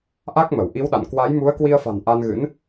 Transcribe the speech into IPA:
ʔ a˦˥ k̚ m ə˧˩ w ʔ i˨˦ w ɗ a̰˧˨ n k w a˨˦ j m u˨˦ ə̯ k w i˧ ə̯ f a̤˨˩ n ʔ a˧ n ɣ ɨ̰˧˥ n

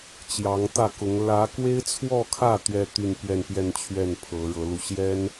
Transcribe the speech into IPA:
t͡ɕ j ɑ˧˥ ŋ t̪ ä˥˩ k ʊ˧˥ ŋ l ä˧˥ k w e˥ ɪ̯ t͡sʰ w ɔ˥˧ kʰ ä˥˩ t̪ ɥ ɛ˥ t̪ y˥˧ n p ɥ ɛ˥˧ n p j ɛ˥˧ n t͡ɕʰ ɥ ɛ˥˩ n pʰ ɤ˧˥ ɻ ɤ˧˥ l u˧ ɕ j ɛ˥ n

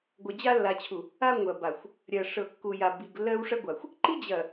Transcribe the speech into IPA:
ɡʷ ɐ˨ d͡ʑ a˦ lː a˨ t͡ɕʰ u˨ | a˦ ŋʷ ɐ˨ b a˨ xʷ | ɾʲ ɐ˨ ʂ ɤ˨ kː u˨ j a˨ b i˨ ɡ lː ɜ˦ w ʂ ɐ˦ ɡʷ a˨ xʷ | ǃ i˦ d͡ʑ ɐ˨

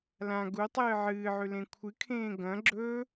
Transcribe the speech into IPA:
l ã ɡ u tˤ ɨː ʕ ɨː ʕ ʉ l ẽ kʷʰ ɨ kʰ ẽː ɡ ɐ̃ ɡ͡ǁ ɵ

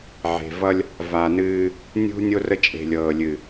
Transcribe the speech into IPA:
ʕ e̤˨ v ʌ˦ lʲ | v a˨ n ɨː˦ | nʲ ṳ˦ nʲ o˦ r ə˦ t͡ʃʼ e̤˨ lʲ ɤː˨ lʲ ɨ˨

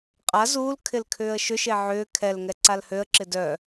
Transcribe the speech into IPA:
qʼ a z uː l kʰ ɪ l kʰ ʏː ə̯ ʃ ʏ ʃ e ʕ ʏː kʰ ɛ l ŋ ɛ ǀ a l h ø ə̯ ǁ ɪ d œ

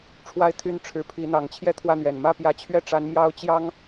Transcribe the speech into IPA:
ʈ͡ʂʰ w a˥˧ ɪ̯ t̪ʰ y˥˩ n ʈ͡ʂʰ ɻ̩˧˥ pʰ i˧˥ n̪ ɑ˨˩ ŋ t͡ɕʰ j ɛ˥˧ t̪ʰ w ä˥˩ n̪ ɥ ɛ˨˩ n m ä˥˩ p j ä˧˥ t͡ɕʰ ɥ ɛ˥˩ ʈ͡ʂ a˧˥ n m j ɑ˥ ʊ̯ t͡ɕ j ɑ˥ ŋ

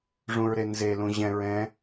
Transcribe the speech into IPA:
ʐ ũ ɹ ɾ e n z e l ũ ʑ ɛ̃ ɹ ɛ̃

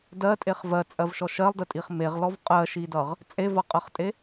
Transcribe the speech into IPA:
d ɜ tʼ e χ v ɜ t͡sʼ ɜ v ʃ ɔ ʃ ɜ lˠ d ə tʼ i χ m e ʁ l ɔ v qʼ ɜ ʃ i d ʌ ʁ | t͡sʼ e v ʌ qʼ ɜ χ tʼ e

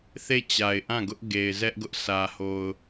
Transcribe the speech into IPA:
θ e˦˨ t͡ɕ a˨ ɪ̯ ʔ ã˦˨ ɡ ʊ˦ ʔ ɡ e˨ ɪ̯ z ɛ˦ ʔ ɡ ʊ˦ ʔ s ä˨ h o˨ ʊ̯

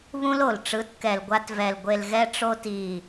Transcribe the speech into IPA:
β ũ˦ l o˨ l ʈ͡ʂ ɯ˨˦ t k ɛ˨ l ɡʷ a˧ t v ɛ˨ l ɡʷ e˨ l ɣ ɛ˧ ʈ͡ʂ o˧ t i˨

